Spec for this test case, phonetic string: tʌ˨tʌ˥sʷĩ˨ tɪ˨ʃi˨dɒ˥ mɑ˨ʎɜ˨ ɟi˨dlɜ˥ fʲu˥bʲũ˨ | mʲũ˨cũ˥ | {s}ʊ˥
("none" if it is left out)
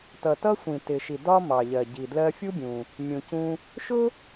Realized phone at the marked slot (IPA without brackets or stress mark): ʃ